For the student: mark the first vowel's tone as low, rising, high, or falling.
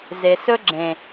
low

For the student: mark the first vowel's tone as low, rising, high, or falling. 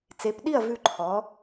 rising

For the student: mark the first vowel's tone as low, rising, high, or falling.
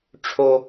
high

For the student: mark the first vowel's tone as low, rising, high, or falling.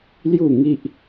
falling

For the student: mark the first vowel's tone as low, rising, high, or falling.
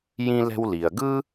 high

